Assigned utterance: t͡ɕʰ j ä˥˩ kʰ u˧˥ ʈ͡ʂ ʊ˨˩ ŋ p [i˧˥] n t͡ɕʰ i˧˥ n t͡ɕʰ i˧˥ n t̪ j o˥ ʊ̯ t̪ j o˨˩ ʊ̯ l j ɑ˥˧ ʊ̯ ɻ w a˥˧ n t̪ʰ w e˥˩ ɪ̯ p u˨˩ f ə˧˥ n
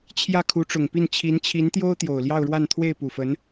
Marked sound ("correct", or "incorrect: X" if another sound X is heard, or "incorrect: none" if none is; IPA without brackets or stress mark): incorrect: i˥˩